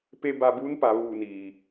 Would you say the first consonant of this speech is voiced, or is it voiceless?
voiceless